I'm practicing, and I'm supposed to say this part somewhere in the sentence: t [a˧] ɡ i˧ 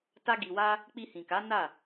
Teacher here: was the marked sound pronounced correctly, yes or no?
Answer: no